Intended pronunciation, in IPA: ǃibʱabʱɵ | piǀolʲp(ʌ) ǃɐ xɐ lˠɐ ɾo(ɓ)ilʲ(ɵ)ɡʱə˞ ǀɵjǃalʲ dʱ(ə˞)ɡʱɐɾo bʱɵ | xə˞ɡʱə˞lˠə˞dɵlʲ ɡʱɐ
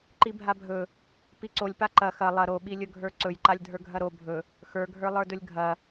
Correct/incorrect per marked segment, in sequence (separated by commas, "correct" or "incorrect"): incorrect, correct, correct, correct